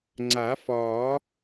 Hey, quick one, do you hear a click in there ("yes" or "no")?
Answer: yes